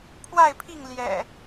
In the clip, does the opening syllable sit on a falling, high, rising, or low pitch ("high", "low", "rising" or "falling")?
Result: falling